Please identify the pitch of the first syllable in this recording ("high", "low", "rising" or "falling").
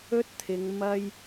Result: high